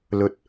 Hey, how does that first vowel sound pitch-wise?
high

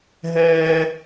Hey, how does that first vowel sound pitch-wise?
high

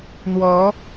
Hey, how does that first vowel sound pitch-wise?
rising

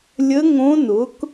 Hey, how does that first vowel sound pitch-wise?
rising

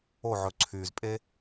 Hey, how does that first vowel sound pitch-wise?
falling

